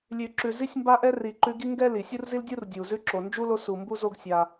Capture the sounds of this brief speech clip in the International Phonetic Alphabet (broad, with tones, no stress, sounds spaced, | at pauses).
lʲ ʉ˨ ǁ ʉ˨ z i˦ sʲ m b a˦ ʔ ɛ˦ r i˨ ǃ ʉ˦ ɡ i˦ ŋ ɡ ɛ˦ l i˩ sʲ u˥ r z i˥ l dʲ u˥ r dʲ u˩ z ʉ˦ ǁ o˩ n d͡ʒ u˥ l o˦ s u˩ m b u˦ z o˦ ɡ sʲ a˨